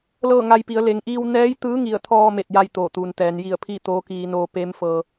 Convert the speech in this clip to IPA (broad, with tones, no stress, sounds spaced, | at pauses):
l ɤː˥˨ ŋ a˧ j p i˩˧ ə̯ l e˩ ŋ ʔ iː˧ w n ɛː˧˥ j t̪ ɯː˧˥ ŋ i˧˩ ə̯ t̪ʰ ɔː˧ m e˧˩ t̚ j a˧ j t̪ oː˧˩ t̪ uː˩ n t̪ ɛː˩˧ n j i˧˩ ə̯ pʰ iː˥˨ t̪ oː˧˥ k iː˧ n oː˧ p e˧˥ m f ɤː˧